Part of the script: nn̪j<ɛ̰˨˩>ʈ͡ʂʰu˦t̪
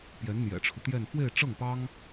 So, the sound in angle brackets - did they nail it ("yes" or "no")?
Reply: yes